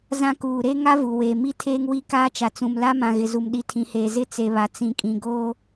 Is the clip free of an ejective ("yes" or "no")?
no